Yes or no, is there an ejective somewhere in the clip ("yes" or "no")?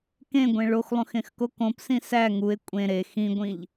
yes